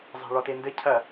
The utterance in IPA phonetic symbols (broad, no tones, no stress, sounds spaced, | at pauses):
zˤ ɛ̤ ɭ ɔ t e n d ɘ cʰ ɐ